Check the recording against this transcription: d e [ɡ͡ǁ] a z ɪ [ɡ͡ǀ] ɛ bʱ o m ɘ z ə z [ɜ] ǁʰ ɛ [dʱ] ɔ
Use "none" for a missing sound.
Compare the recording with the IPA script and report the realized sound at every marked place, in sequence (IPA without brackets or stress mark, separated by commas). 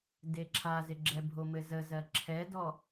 ǁʰ, ɡ͡ǁ, ɜ, d